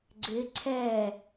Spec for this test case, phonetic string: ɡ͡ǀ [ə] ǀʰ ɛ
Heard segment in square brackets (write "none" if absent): ɪ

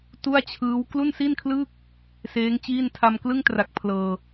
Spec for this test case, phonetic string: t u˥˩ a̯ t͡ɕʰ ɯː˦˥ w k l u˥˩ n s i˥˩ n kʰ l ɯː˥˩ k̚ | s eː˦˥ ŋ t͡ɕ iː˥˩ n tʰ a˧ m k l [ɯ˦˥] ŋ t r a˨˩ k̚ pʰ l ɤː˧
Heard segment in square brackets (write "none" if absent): ɯ˥˩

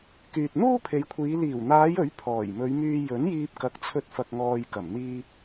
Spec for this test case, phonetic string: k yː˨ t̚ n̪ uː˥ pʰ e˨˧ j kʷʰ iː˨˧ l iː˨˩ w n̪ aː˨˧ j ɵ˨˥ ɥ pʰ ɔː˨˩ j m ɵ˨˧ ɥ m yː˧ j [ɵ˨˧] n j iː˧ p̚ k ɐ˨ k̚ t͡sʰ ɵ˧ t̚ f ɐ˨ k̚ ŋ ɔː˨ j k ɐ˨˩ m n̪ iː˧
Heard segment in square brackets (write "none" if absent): ɵ˨˥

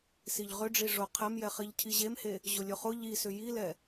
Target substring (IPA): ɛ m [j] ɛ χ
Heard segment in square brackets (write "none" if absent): j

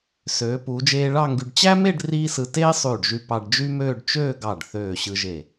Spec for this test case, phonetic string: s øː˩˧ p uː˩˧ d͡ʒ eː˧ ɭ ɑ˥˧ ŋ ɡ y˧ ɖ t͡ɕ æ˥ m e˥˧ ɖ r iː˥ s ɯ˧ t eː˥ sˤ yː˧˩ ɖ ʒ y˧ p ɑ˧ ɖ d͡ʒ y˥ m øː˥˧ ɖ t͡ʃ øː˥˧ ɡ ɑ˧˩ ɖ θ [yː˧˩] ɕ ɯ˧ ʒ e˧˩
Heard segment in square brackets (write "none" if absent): øː˧˩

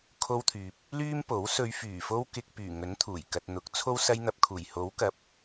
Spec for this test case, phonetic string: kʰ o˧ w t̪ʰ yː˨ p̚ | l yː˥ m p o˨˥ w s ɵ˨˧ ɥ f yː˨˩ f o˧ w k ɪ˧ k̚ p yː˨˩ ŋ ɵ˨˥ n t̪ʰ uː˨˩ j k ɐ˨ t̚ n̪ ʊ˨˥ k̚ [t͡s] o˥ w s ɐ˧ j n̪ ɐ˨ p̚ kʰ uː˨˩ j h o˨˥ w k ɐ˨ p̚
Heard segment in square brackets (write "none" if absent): t͡sʰ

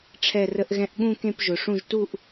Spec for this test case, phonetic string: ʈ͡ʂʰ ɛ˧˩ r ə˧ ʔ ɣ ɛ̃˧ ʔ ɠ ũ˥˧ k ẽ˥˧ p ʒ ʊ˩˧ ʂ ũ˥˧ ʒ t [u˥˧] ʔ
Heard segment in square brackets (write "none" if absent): u˥˧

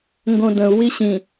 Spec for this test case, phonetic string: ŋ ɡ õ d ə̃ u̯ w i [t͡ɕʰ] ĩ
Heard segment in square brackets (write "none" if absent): ɕ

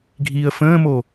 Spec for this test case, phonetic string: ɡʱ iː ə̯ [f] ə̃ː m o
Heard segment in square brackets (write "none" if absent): f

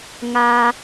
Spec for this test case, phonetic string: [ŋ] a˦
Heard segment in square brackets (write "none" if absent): ŋ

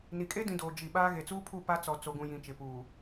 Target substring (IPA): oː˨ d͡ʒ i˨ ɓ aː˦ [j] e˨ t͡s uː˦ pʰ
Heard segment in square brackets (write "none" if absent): ɣ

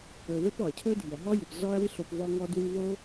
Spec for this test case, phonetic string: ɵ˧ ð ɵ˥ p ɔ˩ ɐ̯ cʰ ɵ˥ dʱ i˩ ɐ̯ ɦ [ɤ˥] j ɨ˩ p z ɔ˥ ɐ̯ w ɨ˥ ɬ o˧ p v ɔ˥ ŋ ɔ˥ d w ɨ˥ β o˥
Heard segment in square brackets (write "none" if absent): ɔ˥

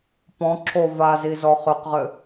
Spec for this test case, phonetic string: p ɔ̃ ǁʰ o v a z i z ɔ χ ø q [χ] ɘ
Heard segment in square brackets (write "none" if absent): ʁ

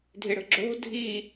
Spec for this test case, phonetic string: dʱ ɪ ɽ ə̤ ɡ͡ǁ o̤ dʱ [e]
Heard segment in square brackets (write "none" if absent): i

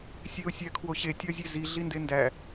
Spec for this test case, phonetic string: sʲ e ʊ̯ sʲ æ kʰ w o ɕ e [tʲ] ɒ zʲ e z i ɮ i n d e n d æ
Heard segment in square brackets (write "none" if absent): tʲ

